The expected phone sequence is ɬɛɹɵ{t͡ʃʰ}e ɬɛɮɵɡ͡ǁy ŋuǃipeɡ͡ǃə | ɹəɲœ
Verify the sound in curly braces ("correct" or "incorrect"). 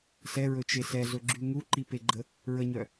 incorrect